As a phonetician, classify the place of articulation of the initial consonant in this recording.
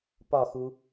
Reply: labial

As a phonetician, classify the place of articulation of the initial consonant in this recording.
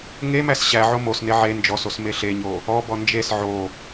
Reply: velar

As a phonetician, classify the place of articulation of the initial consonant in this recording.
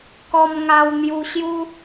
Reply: velar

